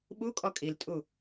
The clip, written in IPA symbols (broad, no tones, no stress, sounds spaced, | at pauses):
ɓ u kʼ ɔ kʼ i l tʼ u